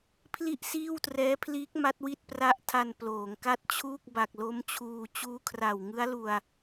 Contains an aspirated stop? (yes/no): yes